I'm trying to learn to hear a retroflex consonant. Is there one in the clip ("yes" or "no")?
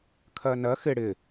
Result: yes